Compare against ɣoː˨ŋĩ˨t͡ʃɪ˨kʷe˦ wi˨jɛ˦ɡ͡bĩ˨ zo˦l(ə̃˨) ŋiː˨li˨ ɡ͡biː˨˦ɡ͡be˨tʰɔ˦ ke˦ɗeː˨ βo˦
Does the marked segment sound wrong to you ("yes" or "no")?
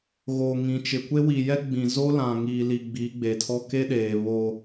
yes